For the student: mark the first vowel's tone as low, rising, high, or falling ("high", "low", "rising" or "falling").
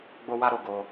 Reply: high